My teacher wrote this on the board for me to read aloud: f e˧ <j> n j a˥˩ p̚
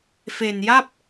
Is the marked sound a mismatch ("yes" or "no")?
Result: yes